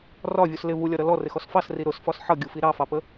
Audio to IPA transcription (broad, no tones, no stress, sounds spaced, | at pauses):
r ɒ vʲ u s l ɪ v u lʲ ɒ ɾ ʌ l ɔ r ɪ x ɔ s f ɑ s r i ɾ ʊ s f ɒ s ħ ʌ ɡʲ u f i ɾ ɑ f ɑ p ə